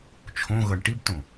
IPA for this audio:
t͡ʃʰõɣɤɳ ʈibtõ

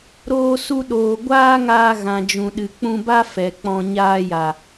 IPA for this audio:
ɾoː˧su˧ ɗoː˨ɡʷaː˦ŋaː˧ ɣã˨d͡ʒũ˨ɗɨ˨ k͡pũ˧ba˦ fɛ˨k͡pɔ̃˧ ɲaː˧ja˨

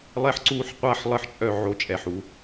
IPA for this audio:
lˠɛ˥ħǀuː˥ħ qʷa˥˩ħlˠə˥˩ħt͡ʃʼœ˥˩ ʕo˥˩t͡ʃʼɛ˨˩ħu˨˩˦

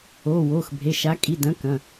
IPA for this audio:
oː˩˧˩woː˩˧˩xbʱe˩˧˩ʃa˨˦ kʼi˩˧˩dɐ̃˨˦ kɐ̃˩˧˩

